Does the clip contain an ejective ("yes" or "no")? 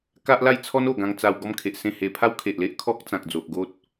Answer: no